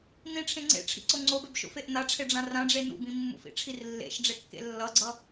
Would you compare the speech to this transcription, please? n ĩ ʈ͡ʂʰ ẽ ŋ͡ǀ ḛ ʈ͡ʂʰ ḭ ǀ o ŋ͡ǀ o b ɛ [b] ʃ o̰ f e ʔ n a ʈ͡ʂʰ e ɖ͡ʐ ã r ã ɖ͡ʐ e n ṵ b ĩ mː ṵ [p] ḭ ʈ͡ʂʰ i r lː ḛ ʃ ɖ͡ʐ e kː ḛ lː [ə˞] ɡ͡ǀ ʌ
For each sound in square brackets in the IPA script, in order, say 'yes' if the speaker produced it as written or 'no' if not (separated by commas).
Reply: yes, no, no